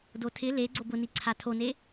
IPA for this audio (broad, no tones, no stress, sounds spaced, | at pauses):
d o tʰ ɪ l e ɡ͡ǀ o b ʊ n i ǀʰ a tʰ o n e